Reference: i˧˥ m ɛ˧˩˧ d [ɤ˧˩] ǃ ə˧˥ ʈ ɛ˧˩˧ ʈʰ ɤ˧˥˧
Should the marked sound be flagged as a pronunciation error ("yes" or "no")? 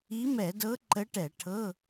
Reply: yes